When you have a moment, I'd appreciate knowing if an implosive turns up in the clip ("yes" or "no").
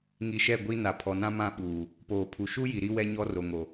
yes